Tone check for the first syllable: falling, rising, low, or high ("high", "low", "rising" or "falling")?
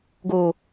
low